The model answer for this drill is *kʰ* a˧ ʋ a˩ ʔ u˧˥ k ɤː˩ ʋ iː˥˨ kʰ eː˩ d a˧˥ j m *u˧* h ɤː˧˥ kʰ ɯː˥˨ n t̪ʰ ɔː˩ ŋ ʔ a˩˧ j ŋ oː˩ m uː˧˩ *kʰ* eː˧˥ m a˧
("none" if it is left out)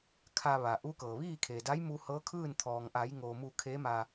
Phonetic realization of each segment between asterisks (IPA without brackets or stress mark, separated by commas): kʰ, u˧, kʰ